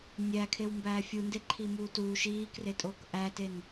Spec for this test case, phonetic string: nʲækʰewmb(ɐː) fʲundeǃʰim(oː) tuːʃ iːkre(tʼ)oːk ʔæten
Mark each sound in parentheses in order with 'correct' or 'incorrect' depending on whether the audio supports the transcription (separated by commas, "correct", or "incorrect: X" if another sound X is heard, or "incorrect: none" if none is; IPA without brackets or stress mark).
incorrect: æː, incorrect: uː, correct